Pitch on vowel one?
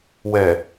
low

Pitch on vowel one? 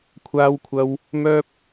high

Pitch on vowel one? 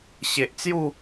low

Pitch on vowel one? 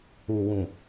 low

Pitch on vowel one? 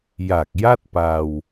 low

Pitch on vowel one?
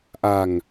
low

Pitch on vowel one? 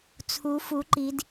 rising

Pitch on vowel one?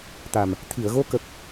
low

